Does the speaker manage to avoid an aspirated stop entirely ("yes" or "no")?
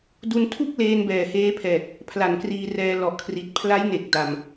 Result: no